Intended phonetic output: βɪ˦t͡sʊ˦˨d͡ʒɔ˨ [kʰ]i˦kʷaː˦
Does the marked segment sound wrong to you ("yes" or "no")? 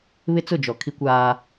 no